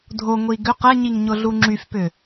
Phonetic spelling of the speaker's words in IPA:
dʱ o ŋʷ i ɡ ʏ q ɛ ɲ i ŋ ɲ ʊ ɮ u ŋ͡ǁ y f p ʏ

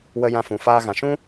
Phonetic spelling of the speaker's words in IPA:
w ə˧ j ã˧ f ũ˨ f aː˧ ɣ ã˨ ʃ ũ˦

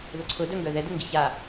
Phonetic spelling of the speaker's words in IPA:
ð ʊ ǀʰ ʊ d œ ŋ ɡ œ ð ɛ d ʊ ŋ ɡ i ç a

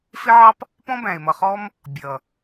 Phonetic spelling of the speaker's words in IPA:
f ɪ˦ ʕ ɑ˦ p | p ɔ̃˦ b æ̃˨ e̯ m ʌ˨ χ ɔ˦ m | bʲ ʌ˨

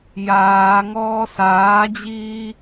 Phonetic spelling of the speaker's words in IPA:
j aː ŋ ɔː s aː d͡ʑ iː

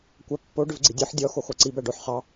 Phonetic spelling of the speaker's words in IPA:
kʷ æ pː o ɖ ʏ v ɡ͡ǀ i dʲ ɔ ħ dʲ ɔ x o x o ǀ i b æ ɖ o ħ χ ɑ

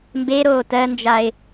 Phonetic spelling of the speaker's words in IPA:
m b e ɾ oː t ɜ n d͡ʒ a ɪ̯

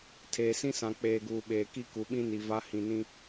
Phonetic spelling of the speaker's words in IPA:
tʰ eː˨ s ĩ˦ s ã˨ k͡p eː˨ ɡ uː˨ ɓ eː˨ k i˦ k u˨ ɓ ĩ˦ n i˨ v a˦ h ĩ˨ n ĩ˦

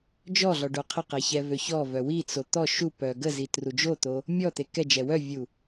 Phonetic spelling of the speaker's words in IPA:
d͡ʒ ɔ ɮ ɔ ɖ o qʰ ə q ɛ ç ɛ v ø ç ɔ v œ w i t͡s o t̪ ɔ ʃ u p œ ɡ ə z i t r u d͡ʒ o t̪ o | mʲ ɔ t̪ e k ɛ d͡ʒ ɛ w œ vʲ u

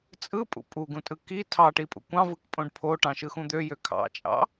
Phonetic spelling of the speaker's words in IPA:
t͡sʼ ɯ pʼ ṵ pʼ u ɡ ũ tʼ ɯ k i tʰ ɑ ʈ i pʼ ṵ kʷ ɑ̃ v ɯ k pʼ õ ɖ pʰ o ʈ ɑ̃ ʃ ɯ x ũ d̪ ø j ø kʰ ɑ̰ t͡ʃʼ ɑ̰

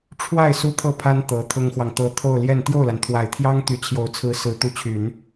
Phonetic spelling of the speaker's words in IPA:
ʈ͡ʂʰ w a˥˩ ɪ̯ s u˥ t̪ʰ ɤ˥˩ pʰ a˥ n t̪ ɤ˧˥ t̪ʰ ʊ˥ ŋ x w ɑ˨ ŋ t̪ ɤ˧˥ t̪ʰ o˥˧ ʊ̯ l j ɛ˥˧ n t̪ j o˥˩ ʊ̯ l a˩ n t̪ʰ w a˨˩ ɪ̯ t̪ʰ j ɑ˥ ŋ t̪ y˧˥ t͡ɕʰ j o˨˩ ʊ̯ t͡sʰ ɹ̩˧˥ s ɹ̩˧˥ t̪ u˧˥ t͡ɕʰ y˨˩˦ n

